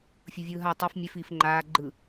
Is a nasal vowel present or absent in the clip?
absent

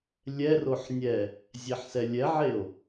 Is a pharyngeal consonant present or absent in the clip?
present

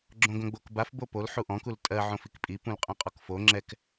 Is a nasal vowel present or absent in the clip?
present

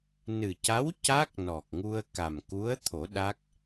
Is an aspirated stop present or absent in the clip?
present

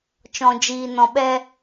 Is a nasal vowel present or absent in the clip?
present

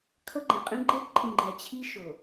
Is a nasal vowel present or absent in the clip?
present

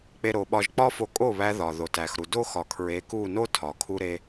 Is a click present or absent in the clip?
absent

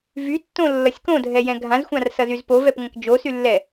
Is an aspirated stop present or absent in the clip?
absent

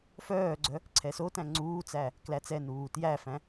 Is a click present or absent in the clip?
present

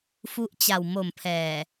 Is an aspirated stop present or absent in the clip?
present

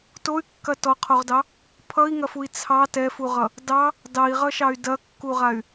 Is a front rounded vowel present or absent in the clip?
present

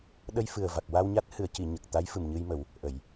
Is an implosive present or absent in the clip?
present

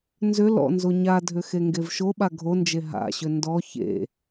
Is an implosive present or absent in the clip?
present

